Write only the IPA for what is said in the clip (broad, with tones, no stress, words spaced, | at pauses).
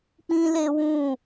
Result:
k͡pĩ˦le˦wũ˦˨